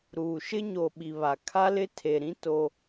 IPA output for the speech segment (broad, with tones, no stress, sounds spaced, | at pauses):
ɾ uː˨ ʃ ɪ˦ ɲ o˨ ɓ i˨ β a˨ kʰ a˦ l ɪ˦ tʰ e˨ ɾ ĩ˦ t o˦